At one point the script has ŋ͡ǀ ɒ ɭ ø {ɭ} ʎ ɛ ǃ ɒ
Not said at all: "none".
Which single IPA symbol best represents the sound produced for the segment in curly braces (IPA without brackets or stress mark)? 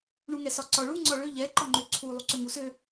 none